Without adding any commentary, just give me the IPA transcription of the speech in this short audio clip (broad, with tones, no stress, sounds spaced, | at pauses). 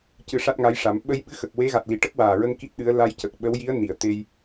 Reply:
c ɨ˧ ʂ a˦˥ t̚ ŋ a˧˥ j ʂ a˨˩˦ m ɓ ə˧ j ɓ ɨ˧˥ x ə˨˩ k̚ w e˧˥ ɣ a˨˩ t̚ l i˨˩˦ ʈ ə˦˥ k̚ w aː˨˩ ɹ ə˧ ŋ k i˦˥ t̚ ɗ ɨ˧˥ ə̯ l a˧ j c ə˨˩ k̚ ɓ ə˧˥ w j i˧˥ ə̯ n i˨˩˨ ə̯ t̪ e˧ j